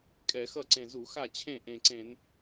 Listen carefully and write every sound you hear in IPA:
kʼ ɛ˧˩˧ x ʌ˥˩ ǀ ẽ˨˩ z u˧˩˧ x a˥˩ t͡ɕʰ ẽ˥˩ ʔ ẽ˨˩ ǀ ẽ˧˩˧ n

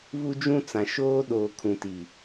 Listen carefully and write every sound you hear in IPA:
β u˦ d͡ʒ ũ˦ t͡s ã˨ ʃ oː˦ ɗ oː˨ kʰ ũ˨ t i˨

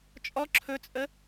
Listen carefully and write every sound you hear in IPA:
t͡ʃʼ ɔ ǁʰ ɵ t͡sʼ ə

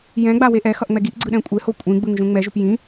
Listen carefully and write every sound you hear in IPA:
j ɛ̃ ɡ͡b a w e ʔ ɛ x ʌ ʔ ŋ͡m ɛ ɡ i ʔ ɡ͡ǀ ɯ ɗ ɛ̃ kʷʼ e h o kʷʼ ĩ ɡ͡b ɯ ŋ ʒ ũ ŋ͡m ɛ ʒ u p j ĩ

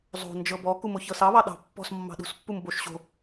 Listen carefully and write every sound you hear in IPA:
zˤ o̤ n d͡ʒ ɤ b ɔ k u m o ç ɤ s ɑ β ɑ ɗ ɑ̤ pː ɔ̤ s mː ɑ̤ ɗ ṳ s pː u m b o ʃ ɕ o̤

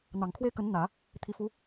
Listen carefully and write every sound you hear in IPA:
n̪ ɑ˨˩ ŋ kʰ w e˥ ɪ̯ k ə˧˥ n n̪ ä˨˩˦ | t̪ʰ i˧˥ f u˧˥

